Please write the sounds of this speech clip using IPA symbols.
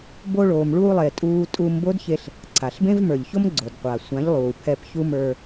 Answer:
bo˧ɭoː˨mɭuː˧lˠe˨ tʼuː˧tʼu˧mbo˦dçe˧ɬ | ǀʰa˨ɬbẽ˦vmə˞˨ʎço˦m ɡ͡ǀo˨dqʷa˨ sʷã˨˦ʎlˠuː˨pʰɛ˧p çu˦mə˞˧

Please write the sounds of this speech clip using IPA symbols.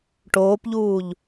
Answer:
ʈoːpʎuːʎ

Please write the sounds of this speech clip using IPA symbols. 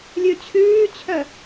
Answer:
lʲʉt͡ɕʰʉːt͡ɕʰœ

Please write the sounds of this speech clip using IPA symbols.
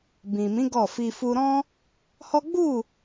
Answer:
bĩ˨ mĩ˨˦ ɡɔ˦˨fi˧ fu˧ɾɔ̃˦ | hɔ˦ ɡ͡bu˦˨

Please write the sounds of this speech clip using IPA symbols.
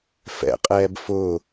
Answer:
fɛ̰qʼɛːb fʊː

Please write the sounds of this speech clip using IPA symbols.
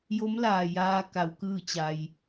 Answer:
jo˧˥mlaː˩ jaː˧ ka˩˧wkɯː˥˨t͡ɕa˩j

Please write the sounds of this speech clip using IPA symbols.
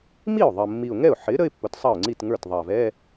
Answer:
mi˥˩ʊ̯ðˤʌ˨˩mːi˨˩ʊ̯ŋɛ˥˩ʊ̯ ħɪ˩˥ ɾə˧˥˧ɪ̯pːʊ˩˥tsˤɑ˥˩ʊ̯ŋ͡ǀi˥˩t ŋə˞˥˩tðˤɑ˨˩vɛ˧˥˧

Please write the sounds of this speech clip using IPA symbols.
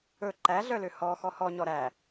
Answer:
ɵ ǃæɮœlø hɔ xɔhɔɲɔ ɾæ

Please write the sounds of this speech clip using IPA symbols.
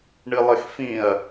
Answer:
ɳɨlˠɘxfĩɐ̯

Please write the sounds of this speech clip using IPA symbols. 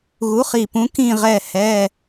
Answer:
ɣu˨˥χi˧˩pũ˨˥ kĩ˥˨ʁɛ˧˩hɛ˩˧˩

